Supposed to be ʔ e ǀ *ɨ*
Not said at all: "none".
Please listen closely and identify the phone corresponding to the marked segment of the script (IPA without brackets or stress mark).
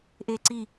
i